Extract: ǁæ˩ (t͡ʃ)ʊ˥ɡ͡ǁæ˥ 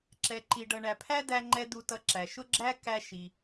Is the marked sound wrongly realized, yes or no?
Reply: yes